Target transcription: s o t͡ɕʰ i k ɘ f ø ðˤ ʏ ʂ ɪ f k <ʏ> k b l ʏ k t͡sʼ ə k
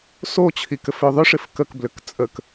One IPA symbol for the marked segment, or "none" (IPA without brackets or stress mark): ə